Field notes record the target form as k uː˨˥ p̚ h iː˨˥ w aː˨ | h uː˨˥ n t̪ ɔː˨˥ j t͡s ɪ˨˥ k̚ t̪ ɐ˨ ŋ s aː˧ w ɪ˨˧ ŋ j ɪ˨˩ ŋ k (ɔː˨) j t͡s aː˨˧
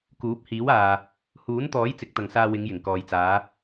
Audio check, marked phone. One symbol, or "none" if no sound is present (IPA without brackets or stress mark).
ɔː˨